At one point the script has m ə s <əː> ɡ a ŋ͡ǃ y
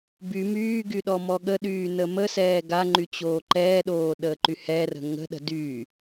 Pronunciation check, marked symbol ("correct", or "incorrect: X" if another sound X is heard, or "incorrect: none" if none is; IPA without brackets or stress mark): incorrect: ɛː